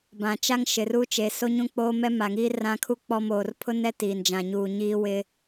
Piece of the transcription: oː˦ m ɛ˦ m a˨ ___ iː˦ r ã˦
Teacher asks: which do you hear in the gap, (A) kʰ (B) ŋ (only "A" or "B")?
B